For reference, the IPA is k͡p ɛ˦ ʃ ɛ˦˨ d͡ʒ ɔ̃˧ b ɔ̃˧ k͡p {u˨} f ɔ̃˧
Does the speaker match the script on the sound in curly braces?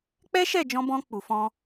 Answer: yes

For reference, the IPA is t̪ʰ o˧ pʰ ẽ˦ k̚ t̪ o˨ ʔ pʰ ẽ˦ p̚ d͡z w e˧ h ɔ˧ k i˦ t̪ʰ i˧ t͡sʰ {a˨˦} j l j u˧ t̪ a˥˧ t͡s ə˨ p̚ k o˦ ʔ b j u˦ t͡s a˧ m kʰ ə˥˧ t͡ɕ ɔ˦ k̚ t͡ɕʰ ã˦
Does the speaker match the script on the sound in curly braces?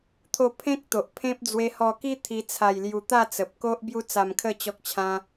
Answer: no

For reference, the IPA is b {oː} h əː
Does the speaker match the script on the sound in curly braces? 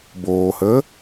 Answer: yes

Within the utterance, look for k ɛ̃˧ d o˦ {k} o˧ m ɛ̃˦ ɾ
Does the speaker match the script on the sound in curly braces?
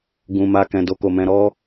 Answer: yes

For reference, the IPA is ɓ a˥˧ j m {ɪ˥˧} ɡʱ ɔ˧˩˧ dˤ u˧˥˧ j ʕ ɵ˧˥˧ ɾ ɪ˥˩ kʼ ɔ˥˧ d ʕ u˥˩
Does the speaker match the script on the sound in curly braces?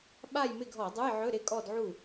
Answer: yes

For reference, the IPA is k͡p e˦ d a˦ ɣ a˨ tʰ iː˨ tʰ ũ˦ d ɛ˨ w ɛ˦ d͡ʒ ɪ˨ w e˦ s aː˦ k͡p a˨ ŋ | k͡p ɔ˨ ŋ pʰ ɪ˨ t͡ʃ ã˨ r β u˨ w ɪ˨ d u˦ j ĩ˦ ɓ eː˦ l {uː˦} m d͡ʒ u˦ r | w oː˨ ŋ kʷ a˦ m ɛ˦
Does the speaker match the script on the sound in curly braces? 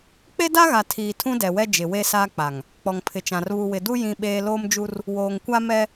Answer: no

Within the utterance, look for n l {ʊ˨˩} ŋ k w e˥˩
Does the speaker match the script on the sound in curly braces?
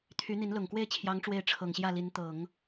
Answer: yes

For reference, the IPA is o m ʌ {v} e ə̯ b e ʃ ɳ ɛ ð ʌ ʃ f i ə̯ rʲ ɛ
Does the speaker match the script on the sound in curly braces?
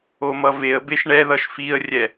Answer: yes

